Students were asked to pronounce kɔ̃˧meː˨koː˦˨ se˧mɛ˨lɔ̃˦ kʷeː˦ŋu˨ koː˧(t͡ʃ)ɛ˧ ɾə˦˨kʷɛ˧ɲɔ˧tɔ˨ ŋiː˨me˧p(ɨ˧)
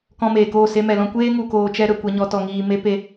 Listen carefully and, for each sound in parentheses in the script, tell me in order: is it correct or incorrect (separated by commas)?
correct, incorrect